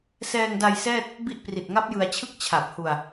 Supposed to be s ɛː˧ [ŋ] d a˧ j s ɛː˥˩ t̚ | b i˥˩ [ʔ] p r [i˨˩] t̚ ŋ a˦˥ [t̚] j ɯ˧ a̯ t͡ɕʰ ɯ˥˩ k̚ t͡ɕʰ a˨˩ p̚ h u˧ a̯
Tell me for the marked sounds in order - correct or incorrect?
correct, correct, correct, incorrect: p̚

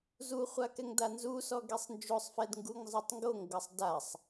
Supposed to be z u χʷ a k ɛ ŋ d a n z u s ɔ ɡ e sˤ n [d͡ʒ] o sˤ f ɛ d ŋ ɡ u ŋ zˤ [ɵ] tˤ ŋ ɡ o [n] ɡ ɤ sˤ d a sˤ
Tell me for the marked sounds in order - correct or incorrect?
correct, incorrect: ɤ, incorrect: ŋ

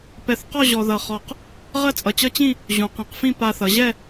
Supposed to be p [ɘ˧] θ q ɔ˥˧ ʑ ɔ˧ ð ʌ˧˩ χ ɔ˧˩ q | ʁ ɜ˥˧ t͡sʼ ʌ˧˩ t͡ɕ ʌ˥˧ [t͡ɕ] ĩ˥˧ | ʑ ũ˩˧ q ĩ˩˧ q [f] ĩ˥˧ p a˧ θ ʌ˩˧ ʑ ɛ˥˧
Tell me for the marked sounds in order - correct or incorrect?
incorrect: ɛ˧, correct, correct

